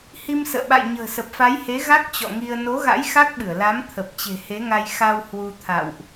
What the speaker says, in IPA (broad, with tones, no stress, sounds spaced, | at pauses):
h i˧ m s ə̰ː˧˨ ɓ a̰˧˨ j ɲ ə̤ː˨˩ s ə˨˩ p̚ f a˨˦ j h e˨˦ ɣ a˦˥ k̚ t͡ɕ ɔ̰˧˨ ŋ i˧ ə̯ n o˨˦ ɣ a̰˧˥ j x a˦˥ k̚ ɓ ɨ˧˩ ə̯ l a˨˦ m t̪ʰ ə˨˩ p̚ t͡ɕ e̤˨˩ h e˨˦ ŋ a˧ j x a˧ w h w u˧ t̪ʰ a̰˧˨ w ʔ